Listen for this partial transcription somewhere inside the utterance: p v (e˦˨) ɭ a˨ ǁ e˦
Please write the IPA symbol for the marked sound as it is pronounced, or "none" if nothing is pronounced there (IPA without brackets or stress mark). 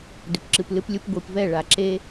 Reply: ɛ˦˨